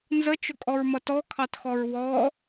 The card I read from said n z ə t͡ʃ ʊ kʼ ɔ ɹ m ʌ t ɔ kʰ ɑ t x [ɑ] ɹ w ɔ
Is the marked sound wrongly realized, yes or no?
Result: yes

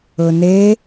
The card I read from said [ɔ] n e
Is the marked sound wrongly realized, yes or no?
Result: yes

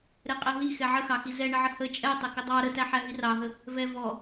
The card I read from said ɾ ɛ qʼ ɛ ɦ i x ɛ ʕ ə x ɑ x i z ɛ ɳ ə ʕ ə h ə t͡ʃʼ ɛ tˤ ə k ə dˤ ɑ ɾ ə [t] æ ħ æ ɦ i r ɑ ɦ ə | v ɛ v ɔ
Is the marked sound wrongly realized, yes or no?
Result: no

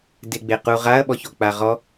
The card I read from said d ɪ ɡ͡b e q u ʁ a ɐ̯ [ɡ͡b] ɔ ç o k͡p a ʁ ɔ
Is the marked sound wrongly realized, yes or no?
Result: yes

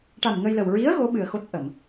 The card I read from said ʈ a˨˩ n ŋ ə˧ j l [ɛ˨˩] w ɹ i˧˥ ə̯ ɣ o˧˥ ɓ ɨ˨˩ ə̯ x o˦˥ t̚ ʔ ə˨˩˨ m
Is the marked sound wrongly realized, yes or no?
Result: yes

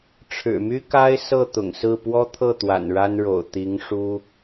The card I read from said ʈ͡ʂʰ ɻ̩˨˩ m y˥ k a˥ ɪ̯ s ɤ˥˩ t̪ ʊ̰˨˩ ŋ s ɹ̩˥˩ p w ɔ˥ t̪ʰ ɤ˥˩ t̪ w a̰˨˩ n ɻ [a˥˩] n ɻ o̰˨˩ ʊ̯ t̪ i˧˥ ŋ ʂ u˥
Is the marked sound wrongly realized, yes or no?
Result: yes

